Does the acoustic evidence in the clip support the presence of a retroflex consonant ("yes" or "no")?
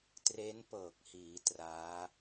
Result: no